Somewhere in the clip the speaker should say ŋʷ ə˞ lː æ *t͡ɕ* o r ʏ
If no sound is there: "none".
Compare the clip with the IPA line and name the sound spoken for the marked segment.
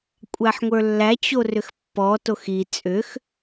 t͡ɕ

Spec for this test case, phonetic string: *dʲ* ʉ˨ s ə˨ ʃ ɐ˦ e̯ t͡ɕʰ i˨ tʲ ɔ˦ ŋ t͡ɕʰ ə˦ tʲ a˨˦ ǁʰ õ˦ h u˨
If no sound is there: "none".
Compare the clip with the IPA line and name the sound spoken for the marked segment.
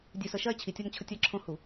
dʲ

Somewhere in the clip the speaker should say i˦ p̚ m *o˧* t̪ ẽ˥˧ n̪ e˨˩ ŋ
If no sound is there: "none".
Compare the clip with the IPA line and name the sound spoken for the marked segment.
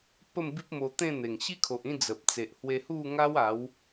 o˧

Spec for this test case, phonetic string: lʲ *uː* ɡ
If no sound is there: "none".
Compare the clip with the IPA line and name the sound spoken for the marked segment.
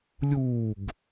uː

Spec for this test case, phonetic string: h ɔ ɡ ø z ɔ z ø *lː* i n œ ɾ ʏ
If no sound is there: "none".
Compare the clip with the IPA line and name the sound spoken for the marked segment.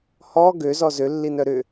lː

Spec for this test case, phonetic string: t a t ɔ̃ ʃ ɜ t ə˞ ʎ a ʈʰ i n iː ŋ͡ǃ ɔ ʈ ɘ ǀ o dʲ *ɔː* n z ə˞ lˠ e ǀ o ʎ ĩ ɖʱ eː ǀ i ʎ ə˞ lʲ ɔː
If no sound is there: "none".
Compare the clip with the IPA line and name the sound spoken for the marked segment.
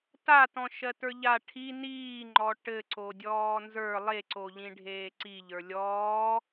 ɔː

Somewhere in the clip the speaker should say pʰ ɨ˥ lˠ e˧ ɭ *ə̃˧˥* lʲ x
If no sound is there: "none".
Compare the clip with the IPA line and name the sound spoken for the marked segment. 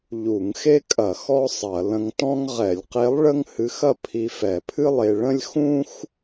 ə̃˥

